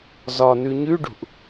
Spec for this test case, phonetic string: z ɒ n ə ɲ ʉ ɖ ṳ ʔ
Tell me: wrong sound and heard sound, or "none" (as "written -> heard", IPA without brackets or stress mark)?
ə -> ʉ